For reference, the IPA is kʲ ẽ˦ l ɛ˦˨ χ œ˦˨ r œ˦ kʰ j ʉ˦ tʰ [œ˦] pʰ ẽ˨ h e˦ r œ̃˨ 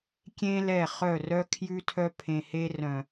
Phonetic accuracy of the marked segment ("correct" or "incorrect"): correct